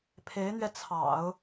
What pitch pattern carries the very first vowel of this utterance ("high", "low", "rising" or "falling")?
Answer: rising